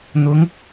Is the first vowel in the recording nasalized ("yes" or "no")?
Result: no